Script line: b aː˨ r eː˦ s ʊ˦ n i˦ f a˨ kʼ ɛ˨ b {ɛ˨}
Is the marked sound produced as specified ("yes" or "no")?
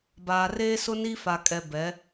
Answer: no